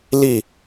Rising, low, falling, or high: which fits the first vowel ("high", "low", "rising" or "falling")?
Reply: falling